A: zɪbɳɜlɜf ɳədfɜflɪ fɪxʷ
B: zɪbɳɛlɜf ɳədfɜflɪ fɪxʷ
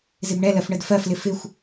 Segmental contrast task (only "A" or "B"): B